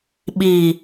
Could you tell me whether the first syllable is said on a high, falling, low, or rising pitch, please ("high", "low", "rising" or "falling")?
low